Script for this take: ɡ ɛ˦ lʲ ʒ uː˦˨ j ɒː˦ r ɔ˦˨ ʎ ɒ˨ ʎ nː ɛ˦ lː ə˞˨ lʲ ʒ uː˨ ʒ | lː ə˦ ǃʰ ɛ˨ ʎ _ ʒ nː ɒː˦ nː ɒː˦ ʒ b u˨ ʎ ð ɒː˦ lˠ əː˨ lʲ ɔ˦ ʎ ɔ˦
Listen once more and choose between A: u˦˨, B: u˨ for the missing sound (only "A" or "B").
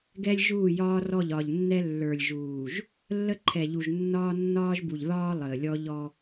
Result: B